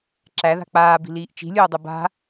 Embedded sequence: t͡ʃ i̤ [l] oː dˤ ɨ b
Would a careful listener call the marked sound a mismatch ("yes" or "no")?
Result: yes